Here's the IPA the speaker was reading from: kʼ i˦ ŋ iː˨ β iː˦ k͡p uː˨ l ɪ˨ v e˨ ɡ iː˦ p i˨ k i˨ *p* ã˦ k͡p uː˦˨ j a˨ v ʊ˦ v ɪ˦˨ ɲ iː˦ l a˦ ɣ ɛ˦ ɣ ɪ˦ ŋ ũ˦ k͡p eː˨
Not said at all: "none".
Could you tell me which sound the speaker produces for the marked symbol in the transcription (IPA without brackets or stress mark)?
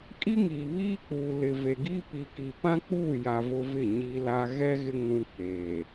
p